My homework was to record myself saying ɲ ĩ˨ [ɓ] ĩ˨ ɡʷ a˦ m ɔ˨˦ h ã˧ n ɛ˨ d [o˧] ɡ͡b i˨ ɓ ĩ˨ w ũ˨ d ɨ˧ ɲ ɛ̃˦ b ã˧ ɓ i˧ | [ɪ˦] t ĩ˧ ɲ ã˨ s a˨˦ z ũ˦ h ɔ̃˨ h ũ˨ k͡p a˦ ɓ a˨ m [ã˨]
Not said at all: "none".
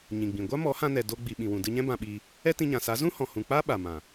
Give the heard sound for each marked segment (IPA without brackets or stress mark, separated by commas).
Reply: ɡ͡b, o˧, ɛ˦, ã˨